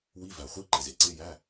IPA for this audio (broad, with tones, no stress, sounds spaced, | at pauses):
w i˧˥˧ v æ˨ χʷ i˧˥˧ ǃ e˨ z e˨ ǀ e˧˥˧ j æ˧˥˧